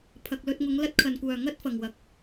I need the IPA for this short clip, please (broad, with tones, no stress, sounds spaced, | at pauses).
pʰ ɐ˨ k̚ l ɵ˧ t̚ ŋ ʊ˨˧ ŋ l ɐ˥ t̚ kʰ ɐ˨˩ n kʷ œː˨˩ ŋ ɐ˥ t̚ f ɐ˨˩ ŋ w ɐ˨ k̚